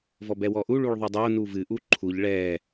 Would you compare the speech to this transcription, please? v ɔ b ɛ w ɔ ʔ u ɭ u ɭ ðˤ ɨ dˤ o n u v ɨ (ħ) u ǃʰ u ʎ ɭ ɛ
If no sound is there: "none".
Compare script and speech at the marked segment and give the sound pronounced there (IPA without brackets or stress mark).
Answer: ʔ